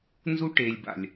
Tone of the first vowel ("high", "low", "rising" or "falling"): high